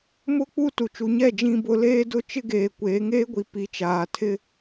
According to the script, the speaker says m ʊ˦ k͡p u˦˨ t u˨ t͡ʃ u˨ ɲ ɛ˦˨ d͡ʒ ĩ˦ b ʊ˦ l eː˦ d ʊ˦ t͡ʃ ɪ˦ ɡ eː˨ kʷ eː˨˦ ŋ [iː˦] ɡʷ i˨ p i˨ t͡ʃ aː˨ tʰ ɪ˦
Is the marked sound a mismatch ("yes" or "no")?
yes